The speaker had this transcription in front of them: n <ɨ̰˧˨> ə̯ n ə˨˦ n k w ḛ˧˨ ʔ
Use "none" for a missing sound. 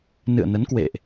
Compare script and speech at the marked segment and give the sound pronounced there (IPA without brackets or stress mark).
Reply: ɨ̰˧˨